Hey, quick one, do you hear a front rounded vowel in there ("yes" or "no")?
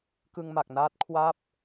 no